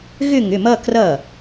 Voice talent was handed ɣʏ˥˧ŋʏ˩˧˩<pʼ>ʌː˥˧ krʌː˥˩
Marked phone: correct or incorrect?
incorrect: m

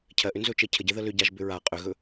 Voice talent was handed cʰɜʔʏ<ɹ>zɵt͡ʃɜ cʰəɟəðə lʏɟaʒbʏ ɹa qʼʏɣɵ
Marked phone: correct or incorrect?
incorrect: n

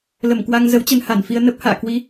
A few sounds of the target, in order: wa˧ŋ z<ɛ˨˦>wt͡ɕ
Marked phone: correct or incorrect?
incorrect: ə˨˦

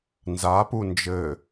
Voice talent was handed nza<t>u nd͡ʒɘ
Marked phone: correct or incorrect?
incorrect: p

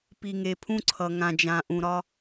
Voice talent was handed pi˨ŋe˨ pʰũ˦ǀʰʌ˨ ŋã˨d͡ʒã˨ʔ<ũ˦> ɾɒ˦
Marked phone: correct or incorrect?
incorrect: ũ˨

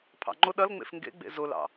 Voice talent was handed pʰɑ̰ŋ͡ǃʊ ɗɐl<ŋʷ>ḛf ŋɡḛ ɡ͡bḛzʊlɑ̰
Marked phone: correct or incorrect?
incorrect: ŋ͡m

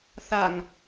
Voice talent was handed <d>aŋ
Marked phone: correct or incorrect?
incorrect: θ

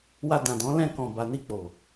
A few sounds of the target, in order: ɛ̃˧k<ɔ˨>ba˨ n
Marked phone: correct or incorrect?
incorrect: ɔ̃˨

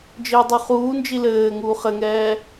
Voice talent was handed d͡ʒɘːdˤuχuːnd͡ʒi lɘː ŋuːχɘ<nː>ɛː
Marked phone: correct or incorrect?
incorrect: ŋ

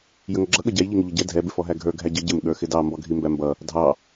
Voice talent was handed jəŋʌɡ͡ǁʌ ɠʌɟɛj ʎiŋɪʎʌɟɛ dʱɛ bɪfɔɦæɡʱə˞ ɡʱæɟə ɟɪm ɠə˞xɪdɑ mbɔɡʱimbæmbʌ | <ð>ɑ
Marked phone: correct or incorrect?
incorrect: dʱ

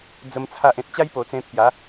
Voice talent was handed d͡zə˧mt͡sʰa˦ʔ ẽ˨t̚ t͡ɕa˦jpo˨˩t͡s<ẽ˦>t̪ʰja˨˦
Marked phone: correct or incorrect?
incorrect: ẽ˧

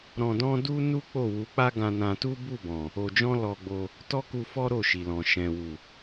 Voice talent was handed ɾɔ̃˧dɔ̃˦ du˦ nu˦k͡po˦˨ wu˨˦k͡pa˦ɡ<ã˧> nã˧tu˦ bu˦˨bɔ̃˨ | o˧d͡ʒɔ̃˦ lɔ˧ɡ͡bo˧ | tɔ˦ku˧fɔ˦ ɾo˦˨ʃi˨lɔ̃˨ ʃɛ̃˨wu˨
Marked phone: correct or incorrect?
correct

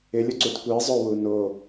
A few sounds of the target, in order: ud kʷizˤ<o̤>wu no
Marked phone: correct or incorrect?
incorrect: o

